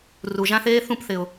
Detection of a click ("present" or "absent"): absent